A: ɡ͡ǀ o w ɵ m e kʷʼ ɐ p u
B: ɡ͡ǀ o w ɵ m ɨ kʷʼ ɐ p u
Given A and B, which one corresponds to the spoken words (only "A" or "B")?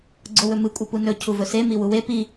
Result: B